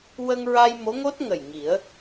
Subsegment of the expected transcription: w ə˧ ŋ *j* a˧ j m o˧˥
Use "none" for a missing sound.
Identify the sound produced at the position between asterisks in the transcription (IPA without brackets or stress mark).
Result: ɹ